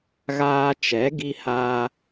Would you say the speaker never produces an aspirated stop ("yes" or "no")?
yes